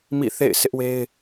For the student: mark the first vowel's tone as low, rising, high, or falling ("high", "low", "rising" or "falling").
falling